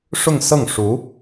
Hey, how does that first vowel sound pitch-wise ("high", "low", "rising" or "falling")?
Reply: falling